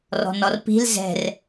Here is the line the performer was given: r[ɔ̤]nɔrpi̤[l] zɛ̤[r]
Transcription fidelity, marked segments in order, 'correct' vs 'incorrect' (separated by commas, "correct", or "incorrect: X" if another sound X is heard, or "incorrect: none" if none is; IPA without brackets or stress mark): correct, correct, correct